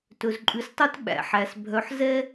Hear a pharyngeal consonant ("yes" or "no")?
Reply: yes